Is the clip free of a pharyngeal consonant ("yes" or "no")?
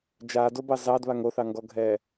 yes